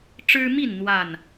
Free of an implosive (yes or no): yes